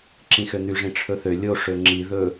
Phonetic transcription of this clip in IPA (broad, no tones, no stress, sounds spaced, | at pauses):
ǁ ĩ x ø n̪ y ʐ ĩ ʈ͡ʂʰ ɵ θ ø lʲ o ʂ ø ŋ͡ǁ i ð ɵ